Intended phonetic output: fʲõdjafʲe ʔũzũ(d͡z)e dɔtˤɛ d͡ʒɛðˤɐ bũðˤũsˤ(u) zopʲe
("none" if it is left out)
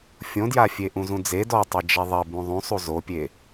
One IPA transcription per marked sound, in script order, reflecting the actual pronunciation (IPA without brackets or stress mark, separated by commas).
d͡z, u